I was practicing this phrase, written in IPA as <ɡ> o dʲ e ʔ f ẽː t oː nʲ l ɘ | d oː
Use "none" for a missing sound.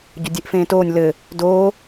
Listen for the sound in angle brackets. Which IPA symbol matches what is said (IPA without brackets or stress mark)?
ɟ